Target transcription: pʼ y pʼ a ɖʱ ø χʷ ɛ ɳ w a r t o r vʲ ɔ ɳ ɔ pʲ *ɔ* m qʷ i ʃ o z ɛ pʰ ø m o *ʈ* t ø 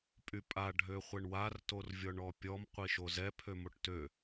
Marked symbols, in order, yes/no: yes, yes

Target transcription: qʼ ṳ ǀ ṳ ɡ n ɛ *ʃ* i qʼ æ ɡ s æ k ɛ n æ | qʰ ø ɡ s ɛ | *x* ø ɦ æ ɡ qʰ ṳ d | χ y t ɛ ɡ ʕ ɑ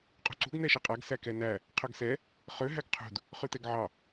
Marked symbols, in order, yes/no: yes, no

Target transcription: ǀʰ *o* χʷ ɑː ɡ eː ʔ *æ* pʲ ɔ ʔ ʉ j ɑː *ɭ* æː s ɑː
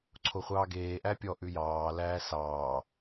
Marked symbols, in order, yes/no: yes, yes, no

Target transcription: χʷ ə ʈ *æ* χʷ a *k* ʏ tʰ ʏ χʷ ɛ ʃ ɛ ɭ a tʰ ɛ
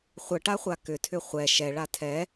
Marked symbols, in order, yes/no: no, yes

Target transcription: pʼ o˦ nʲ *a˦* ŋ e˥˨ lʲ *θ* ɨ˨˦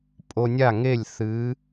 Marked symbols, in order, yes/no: no, yes

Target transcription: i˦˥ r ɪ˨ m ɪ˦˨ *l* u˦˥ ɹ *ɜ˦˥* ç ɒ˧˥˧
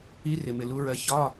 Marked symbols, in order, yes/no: yes, yes

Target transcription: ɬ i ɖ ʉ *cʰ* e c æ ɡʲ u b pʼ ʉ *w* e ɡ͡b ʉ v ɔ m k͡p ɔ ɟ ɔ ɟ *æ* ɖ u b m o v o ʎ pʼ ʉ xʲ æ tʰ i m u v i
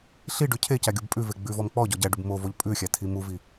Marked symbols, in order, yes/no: yes, no, yes

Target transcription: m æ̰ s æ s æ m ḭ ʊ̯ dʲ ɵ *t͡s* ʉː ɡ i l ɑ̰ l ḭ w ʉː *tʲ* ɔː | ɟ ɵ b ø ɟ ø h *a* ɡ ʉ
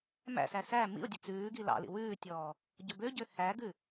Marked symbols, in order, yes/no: yes, yes, no

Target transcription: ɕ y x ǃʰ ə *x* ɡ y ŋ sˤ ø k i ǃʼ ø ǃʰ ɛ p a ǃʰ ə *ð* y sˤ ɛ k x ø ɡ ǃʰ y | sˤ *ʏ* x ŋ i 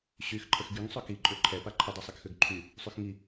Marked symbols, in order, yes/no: yes, no, no

